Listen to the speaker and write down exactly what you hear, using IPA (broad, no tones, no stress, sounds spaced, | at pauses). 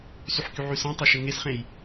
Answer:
s y ħ k y ʕ y s ẽ tˤ o ʃ ɘ ŋ e s χ ẽ j